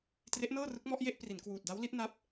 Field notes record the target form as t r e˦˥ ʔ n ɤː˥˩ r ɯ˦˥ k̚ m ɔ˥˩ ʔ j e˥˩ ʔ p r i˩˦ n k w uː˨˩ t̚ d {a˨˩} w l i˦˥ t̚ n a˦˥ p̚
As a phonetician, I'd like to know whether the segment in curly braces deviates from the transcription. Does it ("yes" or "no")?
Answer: yes